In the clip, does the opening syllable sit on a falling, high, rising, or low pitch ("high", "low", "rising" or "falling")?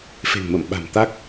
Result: low